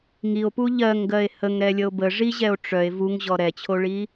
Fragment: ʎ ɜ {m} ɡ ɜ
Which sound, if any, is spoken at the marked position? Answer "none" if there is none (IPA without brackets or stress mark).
ŋ